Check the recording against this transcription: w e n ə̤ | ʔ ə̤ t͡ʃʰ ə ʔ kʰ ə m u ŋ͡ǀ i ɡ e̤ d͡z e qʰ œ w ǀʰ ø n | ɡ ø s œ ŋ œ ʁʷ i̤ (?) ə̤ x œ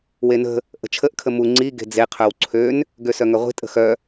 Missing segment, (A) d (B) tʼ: B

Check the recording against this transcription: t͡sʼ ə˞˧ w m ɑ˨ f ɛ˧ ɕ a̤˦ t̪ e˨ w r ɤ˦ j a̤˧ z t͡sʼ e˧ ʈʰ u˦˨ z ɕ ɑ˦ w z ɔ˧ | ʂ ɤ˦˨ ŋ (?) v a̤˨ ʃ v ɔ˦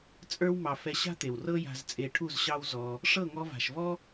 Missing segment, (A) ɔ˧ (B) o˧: A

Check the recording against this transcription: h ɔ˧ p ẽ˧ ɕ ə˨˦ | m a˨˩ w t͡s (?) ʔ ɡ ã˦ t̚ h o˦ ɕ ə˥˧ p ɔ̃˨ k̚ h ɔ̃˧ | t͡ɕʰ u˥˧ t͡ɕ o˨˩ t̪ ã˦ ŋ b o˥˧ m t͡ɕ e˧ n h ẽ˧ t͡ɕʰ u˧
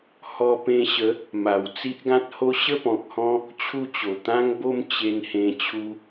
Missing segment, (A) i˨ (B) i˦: B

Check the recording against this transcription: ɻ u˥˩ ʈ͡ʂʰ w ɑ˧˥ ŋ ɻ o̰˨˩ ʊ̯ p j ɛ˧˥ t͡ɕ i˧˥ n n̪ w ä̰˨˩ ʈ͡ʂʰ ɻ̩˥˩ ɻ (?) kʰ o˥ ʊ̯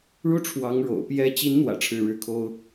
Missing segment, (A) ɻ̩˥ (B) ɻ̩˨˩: A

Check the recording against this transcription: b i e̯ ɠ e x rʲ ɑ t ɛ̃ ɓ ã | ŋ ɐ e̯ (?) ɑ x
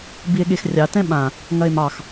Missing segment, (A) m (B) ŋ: A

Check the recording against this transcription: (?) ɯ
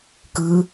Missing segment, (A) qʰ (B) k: B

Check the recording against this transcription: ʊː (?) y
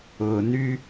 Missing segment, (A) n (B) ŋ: A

